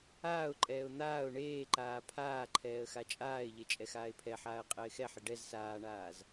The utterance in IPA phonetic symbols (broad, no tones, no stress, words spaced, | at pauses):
aːʊ̯ǃʼɛːʊ̯ n̪aːʊ̯ ɳeːǃaː pʰaːǃʰɛːə̯ xat͡ʃʼaːɪ̯ʎe t͡ʃʼɛxaːɪ̯pʰɛħaːə̯ qʼɪːxɛħɪ ɖɛz saːɳaːz